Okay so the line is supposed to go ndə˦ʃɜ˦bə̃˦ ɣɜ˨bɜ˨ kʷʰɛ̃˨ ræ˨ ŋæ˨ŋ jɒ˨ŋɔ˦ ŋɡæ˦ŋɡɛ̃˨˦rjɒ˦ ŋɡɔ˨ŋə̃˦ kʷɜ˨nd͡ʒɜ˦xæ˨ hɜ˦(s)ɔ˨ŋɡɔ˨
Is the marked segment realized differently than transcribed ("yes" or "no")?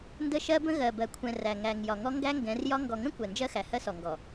no